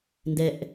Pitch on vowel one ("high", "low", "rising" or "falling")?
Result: low